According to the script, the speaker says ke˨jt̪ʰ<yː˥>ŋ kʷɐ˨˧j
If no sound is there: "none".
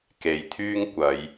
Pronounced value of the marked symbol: yː˥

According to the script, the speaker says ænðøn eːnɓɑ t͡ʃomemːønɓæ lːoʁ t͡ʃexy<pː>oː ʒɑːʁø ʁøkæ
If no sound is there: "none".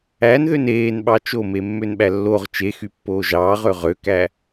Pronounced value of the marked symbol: pː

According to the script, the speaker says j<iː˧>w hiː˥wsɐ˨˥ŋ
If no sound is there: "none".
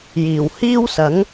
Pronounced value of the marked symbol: iː˨˩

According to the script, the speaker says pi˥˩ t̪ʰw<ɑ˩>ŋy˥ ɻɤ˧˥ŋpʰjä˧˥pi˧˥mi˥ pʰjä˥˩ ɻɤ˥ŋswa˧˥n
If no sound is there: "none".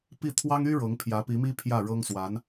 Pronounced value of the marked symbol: ɑ˥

